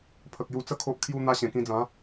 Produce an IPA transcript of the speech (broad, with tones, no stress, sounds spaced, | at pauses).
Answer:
pʰ ə˨ k̚ j u˧ t͡s ə˦ kʰ o˦ ʔ kʰ j u˦ n̪ a˧ ɕ ẽ˨˩ k ĩ˧ d͡z ã˨˦